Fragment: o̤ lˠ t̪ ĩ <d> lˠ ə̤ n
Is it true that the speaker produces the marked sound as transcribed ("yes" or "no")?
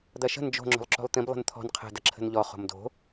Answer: no